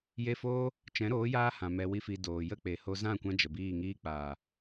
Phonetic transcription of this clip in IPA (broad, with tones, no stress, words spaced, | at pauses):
je˦ foː˦ | t͡ʃɛ̃˨˦ɾoː˨˦jaː˧hã˨ mɛ˧wi˦fi˧ doː˨jə˦˨k͡pe˨ ho˧zã˦˨ kʷã˦d͡ʒə˨biː˦˨ŋiː˦ k͡paː˨